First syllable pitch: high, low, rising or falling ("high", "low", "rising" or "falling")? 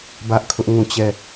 high